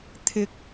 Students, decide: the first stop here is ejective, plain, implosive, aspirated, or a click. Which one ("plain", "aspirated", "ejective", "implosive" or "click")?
aspirated